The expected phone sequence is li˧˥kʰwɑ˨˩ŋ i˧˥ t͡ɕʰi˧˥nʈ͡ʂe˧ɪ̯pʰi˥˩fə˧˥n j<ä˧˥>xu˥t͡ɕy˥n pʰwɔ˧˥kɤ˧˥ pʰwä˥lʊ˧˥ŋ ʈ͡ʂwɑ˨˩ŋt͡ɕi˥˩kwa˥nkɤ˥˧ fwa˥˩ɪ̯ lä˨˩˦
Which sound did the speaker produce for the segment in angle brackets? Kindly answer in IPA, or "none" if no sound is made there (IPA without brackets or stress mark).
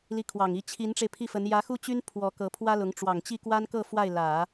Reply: ä˧˥